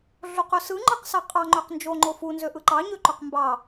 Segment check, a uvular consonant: present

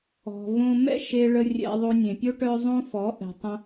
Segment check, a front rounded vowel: present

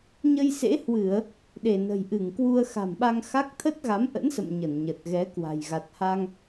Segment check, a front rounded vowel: absent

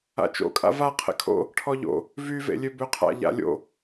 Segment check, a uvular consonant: present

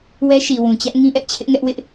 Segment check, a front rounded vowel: absent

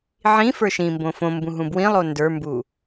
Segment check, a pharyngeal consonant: present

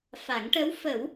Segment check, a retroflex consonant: present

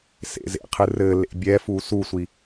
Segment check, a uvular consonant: present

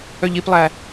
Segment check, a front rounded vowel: present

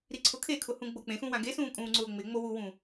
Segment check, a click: present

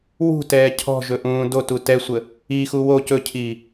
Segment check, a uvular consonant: absent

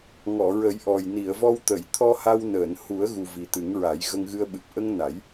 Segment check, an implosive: present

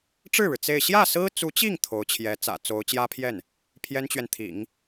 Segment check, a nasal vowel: absent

